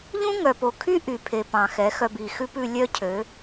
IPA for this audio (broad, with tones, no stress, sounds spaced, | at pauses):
ʎ ũ˦ ŋ œ˨ p o˨ kʰ y˦ ʔ y˨ pʰ e˨ p ɑ̃˨ x ɛ˨˦ x œ˧ b i˨ x ʉ˦ p ʉ˧ lʲ œ˦ cʰ ø˨˦